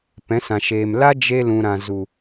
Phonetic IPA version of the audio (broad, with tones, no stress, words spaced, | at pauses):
pɛ̃˨˦sã˨ʃeː˨m la˦d͡ʒe˧ lũ˨ɾã˨zu˨